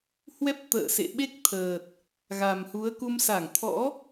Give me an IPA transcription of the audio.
h w ɛ˦˥ p̚ t̪ ə̰ː˧˨ s ḛ˧˨ ɓ e˦˥ k̚ t̪ʰ əː˨˩ t̚ | ɣ a˨˩ m h u˨˦ ə̯ k u˧ m s a˧˩ ŋ t̪ʰ ɔ̰˧˥

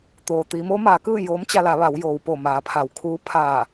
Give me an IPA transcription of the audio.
t̪ oː˩ t̪ iː˩˧ m o˧˥ m aː˩˧ k ɯː˥˨ j oː˧˥ m t͡ɕ a˧ l a˩˧ ʋ a˩˧ w j oː˩ w p o˧˩ m aː˩˧ pʰ a˩ w kʰ uː˧˥ pʰ aː˧˩

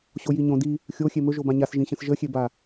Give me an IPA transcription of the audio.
ɕ o j i ɲ õ d i | xʲ o xʲ e m ɵ ʒ o b ã ɲ a s ʒ ĩ ɕ ə̃ s ʒ ə xʲ e b a

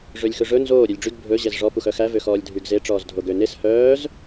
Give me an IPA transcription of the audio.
ʐ ø lʲ x ɵ ʐ ɵ n z oː ɾʲ ʉ lʲ ɖ͡ʐ y ɡ bʱ ɵ ʑ ɛ z ʐ ɔ p u x œ x æ v ø x ɔː lʲ dʱ y ɡ z e ʈ͡ʂ ɔː z dʱ o ɡ ø n e s h œː z

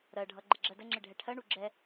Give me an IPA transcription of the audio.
ɾ ɜ ɖʱ ʌ ɡ͡ǃ ɪ ɡ͡ǁ ɜ d ə ŋ͡ǁ ɪ ɖʱ ɛ ʈʰ ɜ ɳ u ɡ͡ǁ ɛ

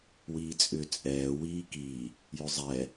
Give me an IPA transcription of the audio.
w iː t͡sʼ ʏ t͡sʼ ɛː w iː k i | j ʏ zˤ ɛ

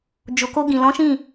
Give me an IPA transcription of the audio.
d͡ʒ o˨ k o˧ ɡ ĩ˨ l ɔ̃˨˦ ʃ ĩ˦˨

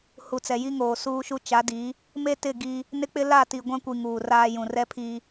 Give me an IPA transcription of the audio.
h u˨ t͡s ɛ˨ j i˦ ŋ oː˨ s uː˦ ʃ u˦ t͡ʃ a˨˦ d i˨˦ | m e˦ t ɪ˦˨ ɡ i˦ | n ɪ˦ k͡p ɪ˦ l a˦˨ t i˨ ɡʷ ã˦ kʷ i˨ ŋ uː˨ r aː˦ j ũ˨ r ɛ˦ pʰ i˦

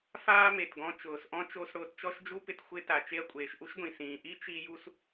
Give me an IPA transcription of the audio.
f aː˥ m e˩ t ɡ ɔ̃˧ t͡ʃ ʊː˩ s ʔ ɔ̃˥ t͡ʃ o˧ s ɽ ʊː˧ t t͡ʃ ɔ˥ ʃ d͡ʒ u˥ p ɪ˧ t xʷ ɪ˧ t a˩ t͡ʃ e˧ ɐ̯ kʷʼ eː˩ ʃ ʔ u˥ ʃ ɡʷ ĩ˩ s ĩː˩ ʔ i˥ t͡ʃ i˧ j u˧ s

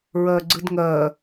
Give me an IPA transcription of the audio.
ɹ ɜ ɡ͡ǀ ɨ d ŋ ɜ

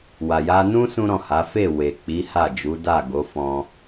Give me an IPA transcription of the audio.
w a˨ j a˧ n ũ˦ s ũ˦ ɾ ɔ̃˦˨ h a˨˦ f e˦˨ w e˨ k͡p i˨˦ h a˦˨ d͡ʒ u˨˦ d a˦˨ ɡ o˨˦ f ɔ̃˧

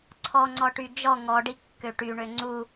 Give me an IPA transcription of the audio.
ǀʰ ɔ ŋ͡ǀ ɔ ʈ y d͡ʒ ɔ ŋ ɔ ɖ i kː ø ʈ y ɳ ø ŋ͡ǀ u

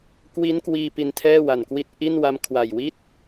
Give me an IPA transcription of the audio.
k w i˦˥ n k w iː˧ p i˧ n tʰ ɛː˥˩ w a˨˩ n k w i˦˥ t̚ ʔ i˥˩ n w a˧ m kʰ w a˨˩ j w i˥˩ t̚

